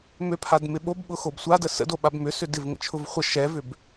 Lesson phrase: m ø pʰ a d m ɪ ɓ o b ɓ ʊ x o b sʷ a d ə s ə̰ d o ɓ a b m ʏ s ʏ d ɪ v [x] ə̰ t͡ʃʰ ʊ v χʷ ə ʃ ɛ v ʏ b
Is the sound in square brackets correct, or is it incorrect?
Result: incorrect